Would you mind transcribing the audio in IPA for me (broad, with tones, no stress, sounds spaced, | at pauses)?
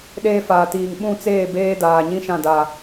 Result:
ɗ eː˦ f aː˨ t iː˨ ŋ ɓ ũ˦˨ t͡s eː˦˨ b eː˦ d aː˨ ɲ ĩ˦ ʃ ã˦˨ d a˨